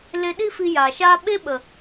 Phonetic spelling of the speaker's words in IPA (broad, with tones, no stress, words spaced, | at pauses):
le˧ɗi˦fi˧ jaː˨ʃaː˦ ɓe˦ɓə˨